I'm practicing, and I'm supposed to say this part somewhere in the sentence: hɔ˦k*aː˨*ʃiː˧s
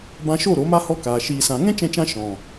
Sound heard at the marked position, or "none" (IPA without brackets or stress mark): aː˨